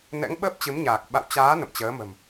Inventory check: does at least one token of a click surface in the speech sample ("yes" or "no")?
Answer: no